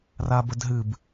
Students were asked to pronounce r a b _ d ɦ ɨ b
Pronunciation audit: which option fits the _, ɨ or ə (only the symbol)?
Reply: ə